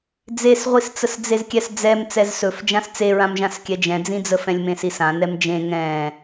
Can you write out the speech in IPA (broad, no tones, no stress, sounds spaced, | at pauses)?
d͡z e s ʁʷ i s t͡s ə s d͡z e z kʲ ɛ s d͡z ɛ m t͡s ɛ z s ɵ f d͡ʒ ã s t͡s e ɹ ã m ʒ ã s kʲ ɛ d͡ʒ ɛ̃ d͡z ĩ d͡z ə f ɛ̃ lʲ m ẽ s i s ã n ɛ m d͡ʒ ẽ ŋ ɛ̃